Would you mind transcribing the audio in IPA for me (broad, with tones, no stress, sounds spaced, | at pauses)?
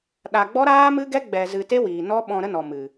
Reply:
ɗ a˧ ɡ͡b ɔ˦ ɾ aː˦ m ɨ˦ ɡ ɛ˦ ɡ͡b ɛ˧ z ɨ˧ t e˦ w iː˨ n ɔ˦ ɓ ɔ̃˧ ɾ ə˦ n ɔ˨ m ɨ˨